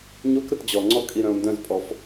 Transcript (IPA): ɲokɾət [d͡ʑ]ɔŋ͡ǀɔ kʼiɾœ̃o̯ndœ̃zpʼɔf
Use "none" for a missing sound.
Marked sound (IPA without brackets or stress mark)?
d͡ʑ